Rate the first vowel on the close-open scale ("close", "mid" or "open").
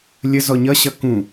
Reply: mid